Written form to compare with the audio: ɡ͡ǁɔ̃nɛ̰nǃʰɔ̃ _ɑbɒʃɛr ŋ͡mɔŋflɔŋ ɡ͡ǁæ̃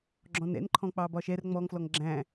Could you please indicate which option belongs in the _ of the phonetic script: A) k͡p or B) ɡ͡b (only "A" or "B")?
A